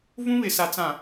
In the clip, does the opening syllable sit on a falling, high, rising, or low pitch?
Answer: high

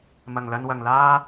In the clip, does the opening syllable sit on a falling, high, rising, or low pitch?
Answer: low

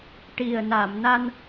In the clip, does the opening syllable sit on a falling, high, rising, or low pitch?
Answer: low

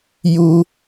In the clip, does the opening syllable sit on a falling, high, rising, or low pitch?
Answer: high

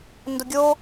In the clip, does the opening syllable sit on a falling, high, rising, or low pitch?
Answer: low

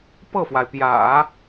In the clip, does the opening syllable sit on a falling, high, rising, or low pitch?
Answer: falling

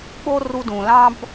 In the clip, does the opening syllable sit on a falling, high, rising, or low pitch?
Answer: high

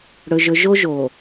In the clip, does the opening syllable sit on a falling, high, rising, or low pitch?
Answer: low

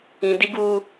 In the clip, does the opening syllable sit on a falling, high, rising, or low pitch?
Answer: high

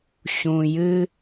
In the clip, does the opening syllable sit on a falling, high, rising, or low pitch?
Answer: low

